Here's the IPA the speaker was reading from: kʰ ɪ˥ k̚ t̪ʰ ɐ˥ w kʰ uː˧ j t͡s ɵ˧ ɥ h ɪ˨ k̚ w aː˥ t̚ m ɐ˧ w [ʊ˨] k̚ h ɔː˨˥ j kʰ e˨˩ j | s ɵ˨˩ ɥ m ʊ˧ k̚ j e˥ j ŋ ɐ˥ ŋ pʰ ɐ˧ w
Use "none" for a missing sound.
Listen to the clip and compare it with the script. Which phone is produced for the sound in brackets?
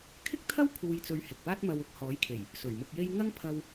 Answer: ʊ˧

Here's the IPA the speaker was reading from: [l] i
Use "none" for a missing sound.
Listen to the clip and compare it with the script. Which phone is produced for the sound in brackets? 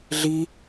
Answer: ɮ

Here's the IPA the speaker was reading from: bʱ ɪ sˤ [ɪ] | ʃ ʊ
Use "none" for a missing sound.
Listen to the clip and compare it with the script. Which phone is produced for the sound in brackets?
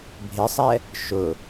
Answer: ɛ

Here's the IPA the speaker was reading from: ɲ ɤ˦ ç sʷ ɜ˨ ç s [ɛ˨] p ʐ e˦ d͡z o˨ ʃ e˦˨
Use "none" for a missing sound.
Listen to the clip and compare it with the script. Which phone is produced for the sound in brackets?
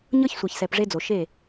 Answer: ɛ˨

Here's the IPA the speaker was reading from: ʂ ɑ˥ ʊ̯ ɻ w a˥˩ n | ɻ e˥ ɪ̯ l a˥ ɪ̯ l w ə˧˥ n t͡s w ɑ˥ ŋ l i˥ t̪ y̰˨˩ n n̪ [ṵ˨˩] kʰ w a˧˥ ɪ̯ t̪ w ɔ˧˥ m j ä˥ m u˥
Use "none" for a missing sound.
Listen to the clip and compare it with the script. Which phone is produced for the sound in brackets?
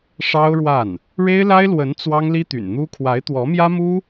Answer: u˥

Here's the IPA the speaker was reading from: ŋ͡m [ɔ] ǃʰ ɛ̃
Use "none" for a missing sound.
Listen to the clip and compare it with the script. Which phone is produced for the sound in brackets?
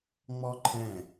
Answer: ɔ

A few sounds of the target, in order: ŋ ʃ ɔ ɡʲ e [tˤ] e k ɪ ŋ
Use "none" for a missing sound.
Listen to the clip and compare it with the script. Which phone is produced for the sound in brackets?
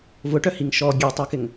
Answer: tˤ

